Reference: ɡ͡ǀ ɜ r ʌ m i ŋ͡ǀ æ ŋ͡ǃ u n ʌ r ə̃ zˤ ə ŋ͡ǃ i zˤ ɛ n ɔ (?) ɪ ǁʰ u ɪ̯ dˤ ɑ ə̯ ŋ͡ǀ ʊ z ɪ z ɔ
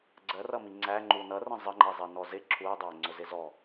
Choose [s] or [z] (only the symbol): z